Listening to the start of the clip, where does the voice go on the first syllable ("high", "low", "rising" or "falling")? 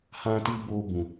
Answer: high